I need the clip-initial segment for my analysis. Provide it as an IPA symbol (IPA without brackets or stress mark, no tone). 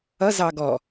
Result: ʌ